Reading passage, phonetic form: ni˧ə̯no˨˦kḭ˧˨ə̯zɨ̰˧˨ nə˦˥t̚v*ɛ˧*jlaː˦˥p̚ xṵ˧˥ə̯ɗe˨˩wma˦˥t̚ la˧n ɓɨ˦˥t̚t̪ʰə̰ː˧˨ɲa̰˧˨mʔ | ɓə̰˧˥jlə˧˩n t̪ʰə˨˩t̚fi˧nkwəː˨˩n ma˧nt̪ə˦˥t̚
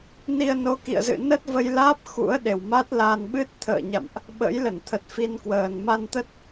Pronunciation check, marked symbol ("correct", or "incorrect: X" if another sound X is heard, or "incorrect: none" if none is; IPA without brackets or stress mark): incorrect: ə˧